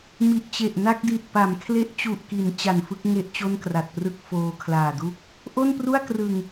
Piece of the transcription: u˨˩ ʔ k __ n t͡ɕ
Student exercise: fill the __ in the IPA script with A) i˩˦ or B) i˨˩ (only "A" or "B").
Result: A